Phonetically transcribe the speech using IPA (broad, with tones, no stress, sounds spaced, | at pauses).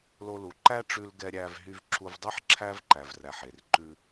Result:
l o˧ l u˨ ǃ æ˦ ʈ͡ʂ ʉ˧ l ɡ ɛ˧ ɾʲ æ˧ v ɦ y˧ v ǁʰ u˧ v dˤ i˦ ħ ǁʰ æ˦ v ǃ æ˨ v r æ˨ ħ e˨ r ǃ ʉ˧